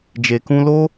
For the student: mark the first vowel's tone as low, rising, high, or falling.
low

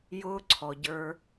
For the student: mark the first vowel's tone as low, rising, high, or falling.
high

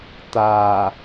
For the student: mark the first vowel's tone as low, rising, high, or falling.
low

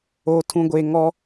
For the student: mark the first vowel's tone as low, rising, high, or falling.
low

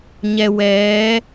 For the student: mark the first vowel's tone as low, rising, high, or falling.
low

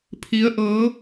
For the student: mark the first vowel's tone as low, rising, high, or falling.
rising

